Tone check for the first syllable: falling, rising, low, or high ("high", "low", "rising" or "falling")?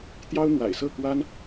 high